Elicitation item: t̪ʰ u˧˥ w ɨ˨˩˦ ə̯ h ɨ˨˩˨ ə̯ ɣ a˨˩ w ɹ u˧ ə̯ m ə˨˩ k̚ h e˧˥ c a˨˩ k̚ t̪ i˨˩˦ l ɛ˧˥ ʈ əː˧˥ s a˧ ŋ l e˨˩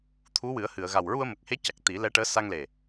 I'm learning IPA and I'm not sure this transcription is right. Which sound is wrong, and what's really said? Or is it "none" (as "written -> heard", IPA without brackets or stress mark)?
none